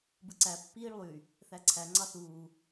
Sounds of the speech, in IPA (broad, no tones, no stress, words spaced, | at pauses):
bɯǀæ pːiːɭlˠy | θæǀʰæ ŋ͡ǀɑθuː